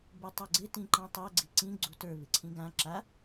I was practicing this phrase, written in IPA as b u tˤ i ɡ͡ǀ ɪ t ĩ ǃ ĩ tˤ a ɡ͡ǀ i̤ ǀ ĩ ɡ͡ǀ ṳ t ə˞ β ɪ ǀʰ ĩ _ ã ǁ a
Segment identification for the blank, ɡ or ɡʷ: ɡ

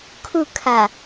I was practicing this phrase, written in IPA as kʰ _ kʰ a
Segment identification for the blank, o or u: u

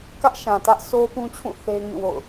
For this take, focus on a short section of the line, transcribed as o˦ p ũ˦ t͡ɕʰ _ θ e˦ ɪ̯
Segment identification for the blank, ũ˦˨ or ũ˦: ũ˦˨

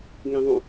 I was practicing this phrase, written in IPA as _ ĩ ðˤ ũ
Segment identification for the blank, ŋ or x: ŋ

